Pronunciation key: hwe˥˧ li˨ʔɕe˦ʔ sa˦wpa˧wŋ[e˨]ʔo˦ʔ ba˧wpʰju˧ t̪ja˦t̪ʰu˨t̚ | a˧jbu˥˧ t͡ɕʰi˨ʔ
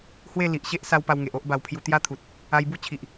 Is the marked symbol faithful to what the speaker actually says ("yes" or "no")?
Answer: yes